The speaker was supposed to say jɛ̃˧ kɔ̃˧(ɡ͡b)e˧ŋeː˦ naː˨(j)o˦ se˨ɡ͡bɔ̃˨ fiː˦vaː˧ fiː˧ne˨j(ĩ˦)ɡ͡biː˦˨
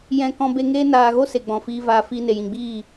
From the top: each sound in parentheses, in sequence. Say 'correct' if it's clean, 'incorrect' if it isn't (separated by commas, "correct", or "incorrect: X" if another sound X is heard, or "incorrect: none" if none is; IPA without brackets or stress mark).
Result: incorrect: b, incorrect: ɣ, incorrect: ĩ˨